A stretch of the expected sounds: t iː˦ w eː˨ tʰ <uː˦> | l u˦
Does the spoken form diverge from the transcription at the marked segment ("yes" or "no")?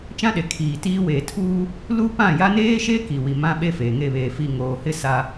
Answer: no